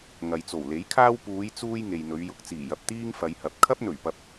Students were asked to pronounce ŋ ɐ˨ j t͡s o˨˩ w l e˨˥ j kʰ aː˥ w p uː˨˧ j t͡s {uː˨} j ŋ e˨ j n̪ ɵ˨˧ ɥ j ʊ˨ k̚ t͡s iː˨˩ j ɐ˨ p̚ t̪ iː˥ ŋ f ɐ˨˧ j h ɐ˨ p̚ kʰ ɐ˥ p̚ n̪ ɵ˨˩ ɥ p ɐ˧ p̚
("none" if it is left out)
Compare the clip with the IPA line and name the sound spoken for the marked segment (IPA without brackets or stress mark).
uː˧